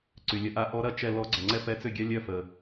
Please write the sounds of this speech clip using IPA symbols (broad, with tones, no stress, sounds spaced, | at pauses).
ǀ y˩ lʲ ə˨˥ ʔ a˨˥ ʔ ɔ˨˥ ɾ ɐ˥˩ t͡ʃ ɛ˥˩ l ɔ˨˥ ɡ͡ǀ ɐ˩ ŋ͡ǀ ɛ˦ p ɛ˨˥ t͡s ʏ˥˩ ɡʲ ɐ˦ lʲ œ˥˩ f ə˩